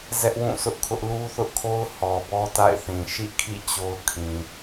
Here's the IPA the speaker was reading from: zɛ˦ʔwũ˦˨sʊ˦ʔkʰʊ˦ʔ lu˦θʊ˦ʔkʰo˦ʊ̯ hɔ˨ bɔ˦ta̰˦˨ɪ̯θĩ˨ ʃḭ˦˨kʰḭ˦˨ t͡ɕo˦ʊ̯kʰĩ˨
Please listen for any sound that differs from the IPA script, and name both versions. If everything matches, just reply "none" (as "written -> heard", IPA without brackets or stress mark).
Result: none